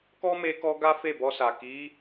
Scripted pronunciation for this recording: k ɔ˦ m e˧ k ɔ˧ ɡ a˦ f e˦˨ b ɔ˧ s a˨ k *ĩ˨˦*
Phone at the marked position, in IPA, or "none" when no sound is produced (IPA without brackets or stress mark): i˨˦